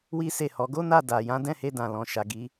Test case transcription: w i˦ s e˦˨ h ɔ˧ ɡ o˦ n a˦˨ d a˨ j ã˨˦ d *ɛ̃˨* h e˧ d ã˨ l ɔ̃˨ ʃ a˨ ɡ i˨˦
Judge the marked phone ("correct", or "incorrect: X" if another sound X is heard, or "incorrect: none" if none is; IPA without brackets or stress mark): incorrect: ɛ̃˦˨